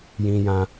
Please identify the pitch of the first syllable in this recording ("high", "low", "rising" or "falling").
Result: high